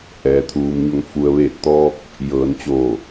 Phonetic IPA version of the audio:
ʔ ɛː˩ t̪ʰ uː˩ m ɲ o˩˧ ŋ f u˩ ə̯ ʋ eː˧˩ t̚ t̪ ɔː˧ k̚ | j ɤː˩˧ n t͡ɕ oː˧˩

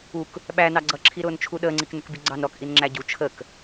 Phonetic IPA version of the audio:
u k | ɓ æ n ɑ ɡ͡ǀ ʌ ǁʰ i ɾ ʊː n t͡ʃʰ u ɗ əː ŋ͡ǀ i k n ə k b i ɡ͡ǀ ɑ n ɾ ɔ k ʔ i n ŋ͡ǁ æ ɟ u t͡ʃʰ ə k

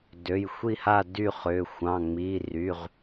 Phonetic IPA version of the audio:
d ø˩˧˩ j xʷ i˥˨ h a˥˨ d y˥˨ χ ʏ˩˧˩ xʷ ɑ̃˩˧˩ ŋ͡m i˩˧˩ r y˩˧˩ ʁ

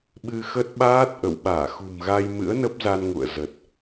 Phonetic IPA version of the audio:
ɓ ɨ˧ x ə˦˥ t̚ ɓ aː˦˥ t̚ ʔ ə̰˧˨ w ɓ aː˧˩ x ṳ˨˩ m ɣ a˧ j m ɨ̰˧˥ ə̯ n ə˦˥ p̚ z a˧ n ŋ ṵ˧˨ ə̯ z ə˨˩ t̚

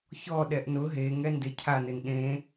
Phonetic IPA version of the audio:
ç ɔ ɗ ɛ ʔ n ʊ ɦ e ŋ ɛ n d e cʰ a n ɪ n ɗ ẽ

